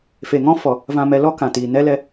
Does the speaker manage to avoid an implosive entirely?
yes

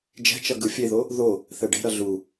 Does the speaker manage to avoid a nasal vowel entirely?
yes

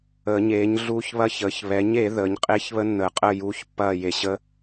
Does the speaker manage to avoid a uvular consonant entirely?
no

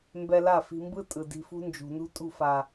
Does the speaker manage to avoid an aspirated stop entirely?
yes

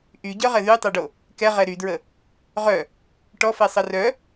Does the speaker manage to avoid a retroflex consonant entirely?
no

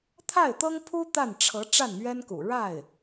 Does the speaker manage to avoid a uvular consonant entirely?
yes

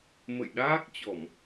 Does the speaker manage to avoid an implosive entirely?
no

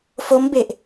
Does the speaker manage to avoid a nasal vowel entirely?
yes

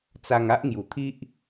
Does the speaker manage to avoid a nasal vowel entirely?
yes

